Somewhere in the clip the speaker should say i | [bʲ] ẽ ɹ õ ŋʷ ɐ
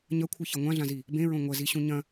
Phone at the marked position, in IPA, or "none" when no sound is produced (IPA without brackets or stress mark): b